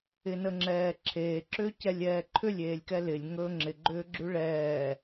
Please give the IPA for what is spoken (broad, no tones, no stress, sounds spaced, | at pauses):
ɪ n ə ŋ͡ǁ ɛː ǁʰ eː ǁ ʏː c ɛ lʲ ɛː ǃʰ ʏ lʲ eː lʲ k ɛ l ɪ lʲ ŋ ɵː ŋ͡ǁ ɪ ɡ͡ǃ ʏː ɡ͡ǁ ʉ ɭ ɛː